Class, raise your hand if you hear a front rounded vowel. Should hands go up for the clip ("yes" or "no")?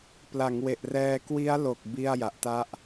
no